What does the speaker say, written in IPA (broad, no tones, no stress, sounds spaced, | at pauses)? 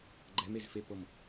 ɡ͡ǃ ɛ m e z f e p ɤ m